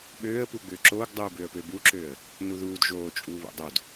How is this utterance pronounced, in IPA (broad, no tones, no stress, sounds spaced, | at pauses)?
ɓ øː ə̯ p u ɡ͡b ʏː ǁ oː ɡ dˤ uː b ʏ ə̯ p ø b u ǁ øː ə̯ | n u ð uː d ʒ oː t͡ʃʼ uː β o̰ dˤ o d